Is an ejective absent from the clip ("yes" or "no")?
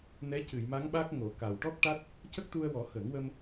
yes